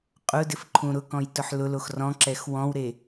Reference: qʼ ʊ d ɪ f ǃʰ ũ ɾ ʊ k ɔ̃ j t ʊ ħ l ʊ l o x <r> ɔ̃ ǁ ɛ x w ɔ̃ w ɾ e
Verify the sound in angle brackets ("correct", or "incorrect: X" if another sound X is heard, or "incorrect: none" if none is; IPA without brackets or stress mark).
correct